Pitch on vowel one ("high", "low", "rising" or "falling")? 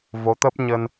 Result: rising